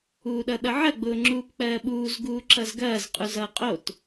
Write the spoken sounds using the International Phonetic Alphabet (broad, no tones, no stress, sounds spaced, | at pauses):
uː ɗ ʌ ɗ ʌ ʕ ɐ ɡ͡b ʊː ŋ͡ǁ uː p k͡p ɜː ɓ uː z ɡ uː ǁ ʌ z ɡ ɐː z qʼ u z ʌː qʼ o t